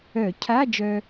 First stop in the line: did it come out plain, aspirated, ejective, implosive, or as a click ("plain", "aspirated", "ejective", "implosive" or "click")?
aspirated